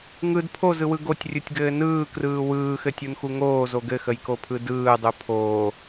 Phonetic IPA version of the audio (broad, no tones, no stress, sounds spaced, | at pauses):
ŋ ɯ d pʰ o z ɯ w ɯ ɡ o tʲ rʲ ɯ tʲ ɡ ɘː n ɯː k r ɯː w ɯː x ɘ tʲ u n x u ŋ oː z o ɡ ɘ x ə j k o pʰ ɯ d ɯː dˤ u pʰ oː